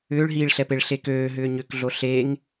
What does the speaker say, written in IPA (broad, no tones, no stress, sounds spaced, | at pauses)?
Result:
ʏː ɭ ɦ iː ɭ ɬ ɛ p e ɭ ɬ e k øː ɦ ʏː ɲ ʏ k ɮ o ɬ e ŋ